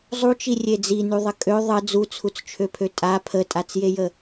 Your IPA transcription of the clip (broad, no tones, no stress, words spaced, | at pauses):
zˤut͡ʃirʲe d͡zinyðˤə kʼø ðˤə d͡zut͡sʰut͡st͡ʃʰøpʰø tʼa pʰətʼat͡sjejə